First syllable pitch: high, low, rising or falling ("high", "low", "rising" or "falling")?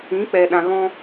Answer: rising